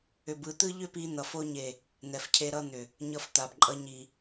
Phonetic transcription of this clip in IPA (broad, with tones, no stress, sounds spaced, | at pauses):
ʏ˨ b ɯ˨ t̪ ɯ˦ ʎ ʏ˦ p i˧ n̪ ʌ˨ f o˧ ɲ e˨ | n̪ ɛ˨ f cʰ e˧ ɾ ʌ˧ n̪ ʏ˨ | ɲ ʌ˧ f t̪ a˨ b ǃʼ ʌ˧ ɲ i˨